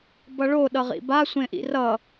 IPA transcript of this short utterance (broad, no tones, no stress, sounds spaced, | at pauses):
b ʌ ɭ o ɗ ʌ ʁ ḭ b a sʷ ẽ ʔ ḭ r ʌ